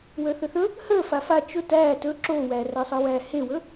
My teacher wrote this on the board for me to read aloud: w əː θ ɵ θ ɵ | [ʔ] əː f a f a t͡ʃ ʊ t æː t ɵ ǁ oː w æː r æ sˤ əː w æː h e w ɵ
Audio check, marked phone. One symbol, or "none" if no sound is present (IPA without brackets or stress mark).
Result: h